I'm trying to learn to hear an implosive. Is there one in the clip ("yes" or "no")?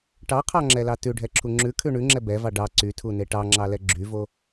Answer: no